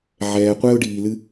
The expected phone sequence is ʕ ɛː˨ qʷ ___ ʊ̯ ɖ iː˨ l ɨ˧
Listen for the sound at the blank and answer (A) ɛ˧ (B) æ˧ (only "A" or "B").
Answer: A